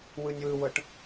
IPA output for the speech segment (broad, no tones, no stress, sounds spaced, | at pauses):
w ɯ nʲ w ɯ w ɤ ʈ